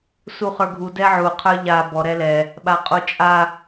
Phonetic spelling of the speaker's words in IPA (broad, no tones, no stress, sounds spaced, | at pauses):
s u χ ə˞ ɡʱ u d ɛ ʕ u qʰ ə˞ ʎ a b ɔ ɾ ɛ l ɛ | ɓ a qʼ u t͡ʃʼ a